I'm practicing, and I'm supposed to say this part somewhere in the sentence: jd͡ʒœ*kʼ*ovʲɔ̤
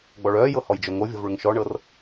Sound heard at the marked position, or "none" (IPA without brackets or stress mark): ŋ